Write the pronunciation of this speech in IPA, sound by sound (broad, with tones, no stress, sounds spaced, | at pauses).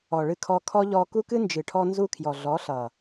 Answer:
ɔ˨ ɭ ɨ˧ kʰ ɔ˧ kʰ ɔ˦ ʎ ɔ˧ k u˦ k ɨ˦ n d͡ʒ ɨ˨ ʈʰ ɔ˧ n z u˧ kʰ j ɔ˨ ɮ ɔ˨˦ ɬ ʌ˨